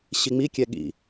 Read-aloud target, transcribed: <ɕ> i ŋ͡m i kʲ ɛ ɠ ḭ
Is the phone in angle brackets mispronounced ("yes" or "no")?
no